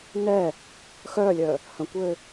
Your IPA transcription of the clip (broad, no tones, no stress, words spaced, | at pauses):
nɛ | xœːlʲœ | hə̃kʷø